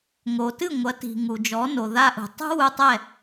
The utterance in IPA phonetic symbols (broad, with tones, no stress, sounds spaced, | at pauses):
ŋ o˩ t ɨ˥˩ ŋʷ ɐ˩˥ t i̤˩ ŋ u˩ d͡ʒ ɔ˩˥ n o˩ ð a˧ ʔ ṳ˩ tˤ ṳ˥ w u˧ tˤ ɛ˥˩